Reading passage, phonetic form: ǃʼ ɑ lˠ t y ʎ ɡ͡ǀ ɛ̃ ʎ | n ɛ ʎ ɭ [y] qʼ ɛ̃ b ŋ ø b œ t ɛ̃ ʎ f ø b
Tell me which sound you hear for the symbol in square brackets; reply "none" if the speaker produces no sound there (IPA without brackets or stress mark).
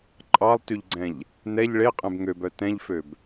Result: e